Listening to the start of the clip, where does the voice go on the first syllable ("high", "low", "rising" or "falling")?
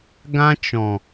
high